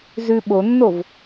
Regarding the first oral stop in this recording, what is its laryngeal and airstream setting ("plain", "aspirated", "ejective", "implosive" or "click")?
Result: implosive